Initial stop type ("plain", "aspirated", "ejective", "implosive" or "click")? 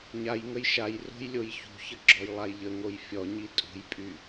click